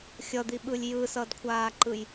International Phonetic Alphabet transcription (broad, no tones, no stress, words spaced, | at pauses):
xʲʌd̪iɓɯlʲ jɯsʌdkʷʰaːǃɯj